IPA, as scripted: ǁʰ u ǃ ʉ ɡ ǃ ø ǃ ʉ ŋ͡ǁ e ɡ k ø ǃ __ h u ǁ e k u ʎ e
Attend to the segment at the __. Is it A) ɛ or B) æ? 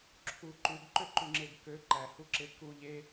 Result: B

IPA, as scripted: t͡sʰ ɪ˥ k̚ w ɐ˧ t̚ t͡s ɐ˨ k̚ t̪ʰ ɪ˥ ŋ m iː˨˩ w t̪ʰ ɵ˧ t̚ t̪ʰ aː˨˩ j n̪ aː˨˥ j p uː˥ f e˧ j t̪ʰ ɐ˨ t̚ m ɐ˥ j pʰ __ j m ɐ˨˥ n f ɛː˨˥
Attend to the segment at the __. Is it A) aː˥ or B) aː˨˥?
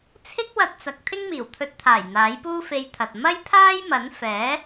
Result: A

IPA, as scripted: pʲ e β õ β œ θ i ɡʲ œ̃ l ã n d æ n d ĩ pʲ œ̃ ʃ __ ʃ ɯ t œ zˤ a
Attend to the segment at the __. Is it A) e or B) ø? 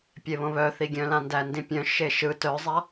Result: A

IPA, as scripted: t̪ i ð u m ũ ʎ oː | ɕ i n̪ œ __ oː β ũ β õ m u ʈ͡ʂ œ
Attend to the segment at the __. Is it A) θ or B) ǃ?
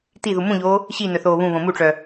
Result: A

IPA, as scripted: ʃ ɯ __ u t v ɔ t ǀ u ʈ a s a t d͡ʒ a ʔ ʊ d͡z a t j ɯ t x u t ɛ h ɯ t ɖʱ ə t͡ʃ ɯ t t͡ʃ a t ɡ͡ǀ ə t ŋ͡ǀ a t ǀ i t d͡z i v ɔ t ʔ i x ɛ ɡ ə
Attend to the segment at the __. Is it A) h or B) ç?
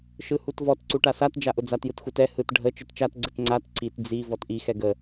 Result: A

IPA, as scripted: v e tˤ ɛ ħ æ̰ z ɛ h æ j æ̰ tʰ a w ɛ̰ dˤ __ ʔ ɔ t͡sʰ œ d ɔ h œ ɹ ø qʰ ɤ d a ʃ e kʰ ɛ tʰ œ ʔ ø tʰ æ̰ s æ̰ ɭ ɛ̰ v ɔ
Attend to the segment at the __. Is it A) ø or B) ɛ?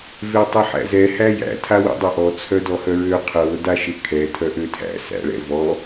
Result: B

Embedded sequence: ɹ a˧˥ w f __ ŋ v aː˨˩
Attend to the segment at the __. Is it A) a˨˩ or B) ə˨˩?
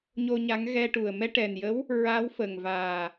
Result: B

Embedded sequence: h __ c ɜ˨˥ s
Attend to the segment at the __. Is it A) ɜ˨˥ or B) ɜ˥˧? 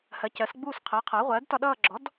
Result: A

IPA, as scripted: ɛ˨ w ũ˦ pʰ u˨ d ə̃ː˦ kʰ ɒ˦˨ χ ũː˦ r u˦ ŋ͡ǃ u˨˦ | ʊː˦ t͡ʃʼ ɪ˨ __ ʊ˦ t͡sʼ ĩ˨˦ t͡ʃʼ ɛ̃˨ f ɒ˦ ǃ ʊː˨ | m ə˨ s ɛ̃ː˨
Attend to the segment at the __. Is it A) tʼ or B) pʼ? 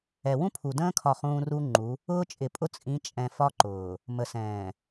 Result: B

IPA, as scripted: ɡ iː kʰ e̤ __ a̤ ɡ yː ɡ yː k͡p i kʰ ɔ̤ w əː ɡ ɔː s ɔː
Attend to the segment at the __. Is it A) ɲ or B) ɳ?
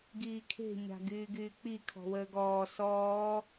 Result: A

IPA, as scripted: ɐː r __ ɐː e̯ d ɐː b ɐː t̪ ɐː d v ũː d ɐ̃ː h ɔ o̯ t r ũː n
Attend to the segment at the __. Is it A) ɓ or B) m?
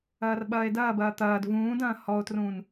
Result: A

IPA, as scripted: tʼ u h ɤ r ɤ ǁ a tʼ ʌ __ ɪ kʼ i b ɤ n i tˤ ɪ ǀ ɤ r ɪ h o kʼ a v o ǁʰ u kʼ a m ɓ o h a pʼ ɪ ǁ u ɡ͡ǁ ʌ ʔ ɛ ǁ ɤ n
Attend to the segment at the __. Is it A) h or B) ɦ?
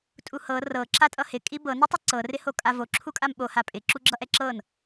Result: A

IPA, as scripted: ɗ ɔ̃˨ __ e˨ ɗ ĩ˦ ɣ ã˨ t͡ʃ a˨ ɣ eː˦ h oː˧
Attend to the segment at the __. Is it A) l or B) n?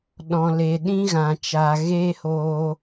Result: A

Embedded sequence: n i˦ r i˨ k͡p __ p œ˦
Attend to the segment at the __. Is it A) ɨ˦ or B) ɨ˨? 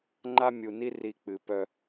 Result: B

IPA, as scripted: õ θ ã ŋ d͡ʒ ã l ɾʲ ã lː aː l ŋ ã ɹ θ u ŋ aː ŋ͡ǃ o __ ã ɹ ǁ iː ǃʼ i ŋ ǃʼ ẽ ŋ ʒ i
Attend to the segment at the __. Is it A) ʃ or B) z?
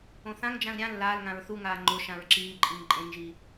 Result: A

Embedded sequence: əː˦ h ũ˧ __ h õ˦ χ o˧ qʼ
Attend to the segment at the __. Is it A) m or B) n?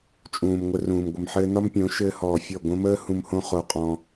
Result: A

